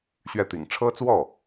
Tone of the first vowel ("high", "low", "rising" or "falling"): falling